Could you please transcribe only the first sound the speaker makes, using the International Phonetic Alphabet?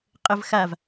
qʼ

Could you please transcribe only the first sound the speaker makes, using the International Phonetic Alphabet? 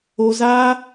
o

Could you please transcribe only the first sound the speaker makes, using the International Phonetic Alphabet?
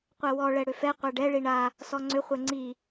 qʷ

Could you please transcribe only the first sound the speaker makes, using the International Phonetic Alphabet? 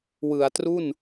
w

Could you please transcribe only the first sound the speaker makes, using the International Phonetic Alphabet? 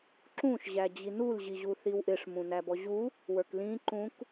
ǁ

